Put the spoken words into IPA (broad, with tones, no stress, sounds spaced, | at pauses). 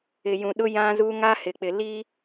ɪ˨ j ũ˨ ɗ ʊ˦ j ã˦ z u˦ ŋ a˦ h ɪ˨ k͡p ɪ˨ l iː˦